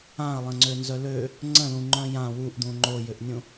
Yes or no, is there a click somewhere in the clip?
yes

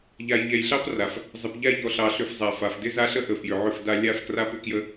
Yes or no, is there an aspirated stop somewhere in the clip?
no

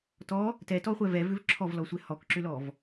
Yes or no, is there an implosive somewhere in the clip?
no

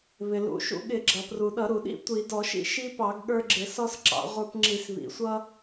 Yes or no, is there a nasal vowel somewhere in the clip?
no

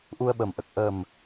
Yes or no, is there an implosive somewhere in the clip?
yes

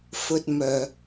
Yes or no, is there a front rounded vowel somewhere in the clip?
yes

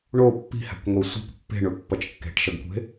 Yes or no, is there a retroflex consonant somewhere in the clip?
yes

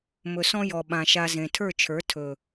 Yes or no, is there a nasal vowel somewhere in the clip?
yes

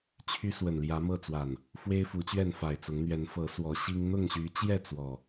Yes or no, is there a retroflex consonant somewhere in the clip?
no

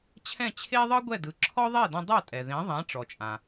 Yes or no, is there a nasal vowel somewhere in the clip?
yes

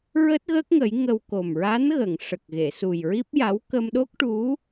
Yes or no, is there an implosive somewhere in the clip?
yes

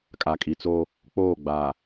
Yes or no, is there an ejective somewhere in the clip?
yes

